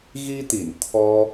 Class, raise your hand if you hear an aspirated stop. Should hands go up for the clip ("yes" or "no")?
yes